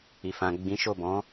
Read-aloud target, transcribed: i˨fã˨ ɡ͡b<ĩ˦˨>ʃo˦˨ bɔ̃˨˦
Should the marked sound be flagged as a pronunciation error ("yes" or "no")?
yes